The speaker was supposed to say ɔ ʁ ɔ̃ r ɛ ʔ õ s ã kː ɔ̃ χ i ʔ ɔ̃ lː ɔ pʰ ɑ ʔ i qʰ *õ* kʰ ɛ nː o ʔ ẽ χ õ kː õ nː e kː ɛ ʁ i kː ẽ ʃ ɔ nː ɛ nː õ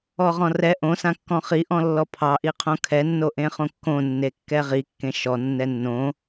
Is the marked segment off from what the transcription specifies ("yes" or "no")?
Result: no